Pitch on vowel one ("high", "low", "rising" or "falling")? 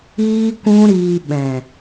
high